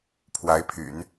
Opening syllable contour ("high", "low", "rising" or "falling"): rising